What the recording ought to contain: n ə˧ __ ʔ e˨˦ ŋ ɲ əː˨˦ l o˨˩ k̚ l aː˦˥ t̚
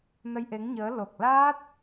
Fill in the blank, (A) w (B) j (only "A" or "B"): B